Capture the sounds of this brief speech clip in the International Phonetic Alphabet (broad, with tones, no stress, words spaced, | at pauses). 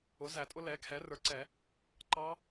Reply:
ʊ˩˥zæ˨˩˦tʼʊ˦˥ lɛ˩˥kʰɛ˩˥ rə˞˩˥ǀɛ˨˩˦ | ǃɑ˦˥